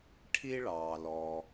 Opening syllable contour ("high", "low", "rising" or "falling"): high